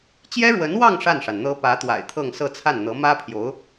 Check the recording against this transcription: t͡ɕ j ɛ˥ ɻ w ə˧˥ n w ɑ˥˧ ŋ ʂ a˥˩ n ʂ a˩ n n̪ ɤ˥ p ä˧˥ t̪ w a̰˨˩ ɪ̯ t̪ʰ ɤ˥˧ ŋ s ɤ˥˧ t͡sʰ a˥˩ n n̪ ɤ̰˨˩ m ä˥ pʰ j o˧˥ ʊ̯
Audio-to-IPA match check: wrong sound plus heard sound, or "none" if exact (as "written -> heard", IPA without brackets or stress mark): ɤ̰˨˩ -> ɤ˧˥